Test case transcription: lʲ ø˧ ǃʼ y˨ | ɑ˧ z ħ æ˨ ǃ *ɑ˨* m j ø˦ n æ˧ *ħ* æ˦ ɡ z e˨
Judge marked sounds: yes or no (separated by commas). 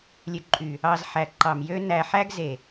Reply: yes, yes